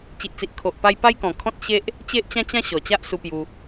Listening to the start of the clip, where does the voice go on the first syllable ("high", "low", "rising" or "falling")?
low